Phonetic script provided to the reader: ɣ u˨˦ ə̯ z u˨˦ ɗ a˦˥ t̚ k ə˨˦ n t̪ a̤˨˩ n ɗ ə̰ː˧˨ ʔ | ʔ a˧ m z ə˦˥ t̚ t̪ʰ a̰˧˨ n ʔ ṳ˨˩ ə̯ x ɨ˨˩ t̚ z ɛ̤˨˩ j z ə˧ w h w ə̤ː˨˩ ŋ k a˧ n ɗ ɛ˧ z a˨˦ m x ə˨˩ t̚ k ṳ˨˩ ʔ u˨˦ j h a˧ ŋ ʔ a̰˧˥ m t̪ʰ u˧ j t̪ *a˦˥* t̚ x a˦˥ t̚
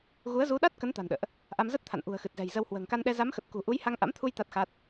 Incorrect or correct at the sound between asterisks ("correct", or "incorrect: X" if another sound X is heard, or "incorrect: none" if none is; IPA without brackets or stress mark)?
correct